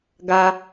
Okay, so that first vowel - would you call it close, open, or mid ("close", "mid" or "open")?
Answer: open